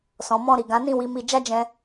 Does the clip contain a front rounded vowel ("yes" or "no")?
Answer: no